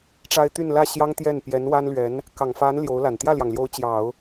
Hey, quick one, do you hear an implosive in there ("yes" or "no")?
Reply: no